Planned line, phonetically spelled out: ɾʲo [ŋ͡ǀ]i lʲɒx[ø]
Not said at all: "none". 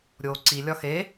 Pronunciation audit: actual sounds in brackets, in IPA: ǀ, e

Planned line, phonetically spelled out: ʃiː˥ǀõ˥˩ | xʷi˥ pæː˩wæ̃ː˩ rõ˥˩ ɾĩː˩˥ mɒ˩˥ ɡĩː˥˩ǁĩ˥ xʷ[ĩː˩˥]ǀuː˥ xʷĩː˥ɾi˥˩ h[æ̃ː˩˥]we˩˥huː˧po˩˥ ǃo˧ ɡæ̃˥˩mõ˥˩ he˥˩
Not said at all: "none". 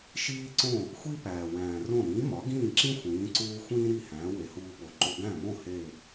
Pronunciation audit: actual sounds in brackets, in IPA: ĩː˩˥, æ̃ː˩˥

